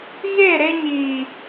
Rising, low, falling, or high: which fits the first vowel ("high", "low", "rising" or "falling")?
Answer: falling